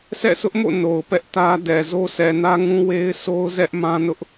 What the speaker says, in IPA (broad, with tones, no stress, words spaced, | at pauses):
sɛ̰˦˨sʊ˦ʔmo̰˦˨ no˨ʊ̯pɛ˦ʔ tä˦ dɛ˨ zo˦sɛ˨nä˦ŋũ˦ we˦ɪ̯so˦ʊ̯ zɛ˦ʔ mã˦nʊ˦ʔ